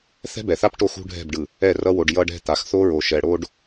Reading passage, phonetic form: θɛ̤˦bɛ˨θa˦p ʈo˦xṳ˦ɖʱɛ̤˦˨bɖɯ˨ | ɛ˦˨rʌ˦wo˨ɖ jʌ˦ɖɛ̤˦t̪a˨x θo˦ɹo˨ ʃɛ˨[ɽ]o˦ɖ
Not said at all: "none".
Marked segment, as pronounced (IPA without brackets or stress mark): ɽ